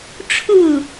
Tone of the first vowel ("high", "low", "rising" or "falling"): falling